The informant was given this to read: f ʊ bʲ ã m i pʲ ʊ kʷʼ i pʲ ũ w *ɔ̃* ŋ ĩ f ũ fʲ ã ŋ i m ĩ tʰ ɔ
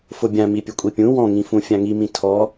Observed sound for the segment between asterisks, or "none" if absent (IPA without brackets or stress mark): ɔ̃